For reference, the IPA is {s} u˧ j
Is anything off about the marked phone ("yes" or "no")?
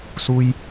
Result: no